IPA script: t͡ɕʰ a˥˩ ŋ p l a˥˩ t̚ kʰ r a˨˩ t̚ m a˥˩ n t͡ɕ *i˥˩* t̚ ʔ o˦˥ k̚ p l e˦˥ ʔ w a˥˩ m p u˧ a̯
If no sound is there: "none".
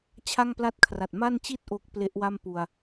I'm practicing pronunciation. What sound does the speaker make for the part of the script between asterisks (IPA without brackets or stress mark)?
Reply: i˥˩